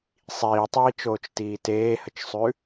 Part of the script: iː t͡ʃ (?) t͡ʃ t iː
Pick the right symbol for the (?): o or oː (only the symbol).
oː